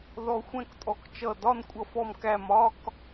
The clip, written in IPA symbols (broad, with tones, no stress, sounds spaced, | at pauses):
ð ɔ˧ xʷ ɛ̃˥˧ k tʼ ɔ˧˩ k t͡ʃ ʌ˧˩ d ɒ˥˧ n kʷʼ ʌ˧ f ɔ˧ m k æ˧˩ m ɒ˥˧ k